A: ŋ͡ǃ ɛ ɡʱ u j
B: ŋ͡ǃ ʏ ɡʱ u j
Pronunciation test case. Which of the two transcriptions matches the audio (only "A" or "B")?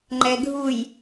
A